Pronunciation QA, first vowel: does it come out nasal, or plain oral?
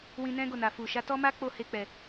nasal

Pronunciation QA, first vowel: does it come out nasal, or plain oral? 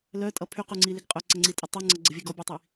oral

